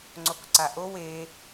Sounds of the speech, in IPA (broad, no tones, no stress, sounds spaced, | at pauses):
ŋ͡ǀ o k ǀ a ʔ o w e